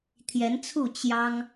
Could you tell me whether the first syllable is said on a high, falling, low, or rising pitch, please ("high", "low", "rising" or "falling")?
rising